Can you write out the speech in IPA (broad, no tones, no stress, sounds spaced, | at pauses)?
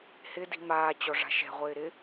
h ɪ d i̤ m aː t͡ɕ ɔ ʐ a̤ ʃ ɛ̤ ʁʷ ɪː ɾ ɪ